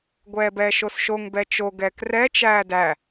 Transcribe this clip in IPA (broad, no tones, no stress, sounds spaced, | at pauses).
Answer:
ɡʷ ɛː b ɛː ʃ o s ʃ o ŋ b ɛ t͡ʃ o ɡ ɛː k r ɛ t͡ʃ æː d æ